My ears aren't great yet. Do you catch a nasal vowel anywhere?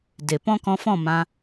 yes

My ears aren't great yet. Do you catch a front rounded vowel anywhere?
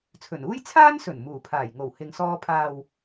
no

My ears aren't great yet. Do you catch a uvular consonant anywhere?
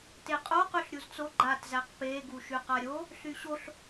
yes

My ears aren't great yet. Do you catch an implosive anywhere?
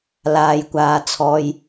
no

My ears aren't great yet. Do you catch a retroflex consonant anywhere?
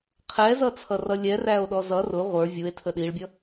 yes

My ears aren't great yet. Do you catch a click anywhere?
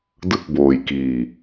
no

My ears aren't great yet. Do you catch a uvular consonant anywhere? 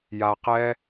yes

